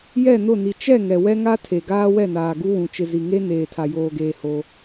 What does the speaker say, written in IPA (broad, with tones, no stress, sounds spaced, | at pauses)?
j ɛ˦˨ n ʊ˦˨ n i˨ t͡ʃ ɛ˦˨ ŋ ɛ˨ w ɛ˦ ŋ a˦ tʰ e˨ ɡ aː˦ w ɛ˦˨ n aː˨ ɡ u˦ w ũ˨ t͡ʃ ɪ˨ z i˨ ŋ e˦ n eː˨ tʰ a˨ j oː˨ ɡ eː˨ h o˦